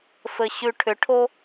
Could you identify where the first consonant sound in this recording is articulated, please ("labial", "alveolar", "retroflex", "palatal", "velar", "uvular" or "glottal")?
labial